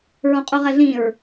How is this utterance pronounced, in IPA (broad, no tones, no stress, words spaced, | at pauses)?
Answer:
ɹõqʼuʁɛɮĩɹ